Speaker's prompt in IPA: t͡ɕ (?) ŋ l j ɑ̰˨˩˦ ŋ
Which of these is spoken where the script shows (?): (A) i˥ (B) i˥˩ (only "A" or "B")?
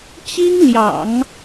A